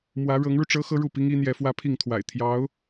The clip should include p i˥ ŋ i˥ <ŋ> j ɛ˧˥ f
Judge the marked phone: incorrect: n̪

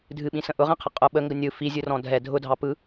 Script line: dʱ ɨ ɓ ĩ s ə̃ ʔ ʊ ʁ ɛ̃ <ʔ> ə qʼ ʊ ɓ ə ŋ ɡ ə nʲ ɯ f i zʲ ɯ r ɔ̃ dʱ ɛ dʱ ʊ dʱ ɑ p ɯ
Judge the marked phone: incorrect: qʰ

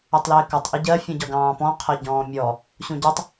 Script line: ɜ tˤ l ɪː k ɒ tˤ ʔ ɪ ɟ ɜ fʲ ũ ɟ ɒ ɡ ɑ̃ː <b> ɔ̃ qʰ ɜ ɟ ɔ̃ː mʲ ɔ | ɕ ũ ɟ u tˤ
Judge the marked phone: incorrect: p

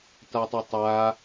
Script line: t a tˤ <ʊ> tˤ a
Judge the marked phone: correct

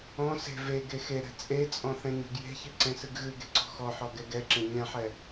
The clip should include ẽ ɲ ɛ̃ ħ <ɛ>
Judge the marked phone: correct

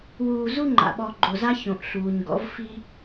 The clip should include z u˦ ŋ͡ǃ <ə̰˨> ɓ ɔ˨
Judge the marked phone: incorrect: a̰˨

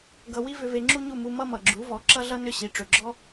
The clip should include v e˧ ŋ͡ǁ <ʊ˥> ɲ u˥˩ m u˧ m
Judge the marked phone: incorrect: u˥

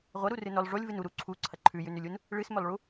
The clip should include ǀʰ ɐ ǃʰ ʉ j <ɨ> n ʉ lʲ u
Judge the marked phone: incorrect: ʉ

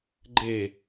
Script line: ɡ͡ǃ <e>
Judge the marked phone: incorrect: eː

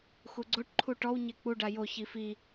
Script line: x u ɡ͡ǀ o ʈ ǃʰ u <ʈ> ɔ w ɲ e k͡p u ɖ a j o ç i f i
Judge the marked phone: correct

